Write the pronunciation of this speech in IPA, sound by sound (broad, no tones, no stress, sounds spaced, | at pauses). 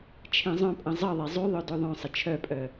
t͡ʃʰ ẽ zˤ œ̃ pʼ ə̃ zˤ ə ðˤ e zˤ y ðˤ œ d ø ðˤ œ̃ sˤ ə t͡ʃʰ œ pʼ œ